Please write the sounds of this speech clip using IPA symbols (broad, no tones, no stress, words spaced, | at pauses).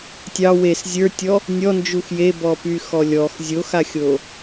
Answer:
tʲɑ wes zʲə˞tʲɔ | nʲɔnd͡ʒux jebɔpyxɔ lʲɔx zʲoxaxʲo